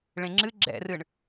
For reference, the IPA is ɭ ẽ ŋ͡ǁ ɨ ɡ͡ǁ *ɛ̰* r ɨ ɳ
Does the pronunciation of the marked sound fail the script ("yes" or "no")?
no